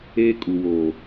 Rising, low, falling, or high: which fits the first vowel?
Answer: high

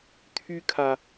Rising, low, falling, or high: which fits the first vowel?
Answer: high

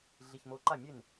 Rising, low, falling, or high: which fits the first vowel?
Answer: low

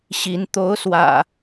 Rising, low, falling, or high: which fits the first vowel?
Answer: rising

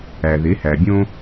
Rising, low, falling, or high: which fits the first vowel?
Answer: low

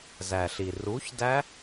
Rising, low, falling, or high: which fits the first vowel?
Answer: low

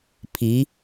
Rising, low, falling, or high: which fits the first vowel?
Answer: rising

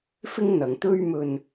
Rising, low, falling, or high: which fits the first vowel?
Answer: high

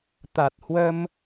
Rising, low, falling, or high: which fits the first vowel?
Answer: low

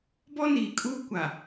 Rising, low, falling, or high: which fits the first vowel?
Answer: high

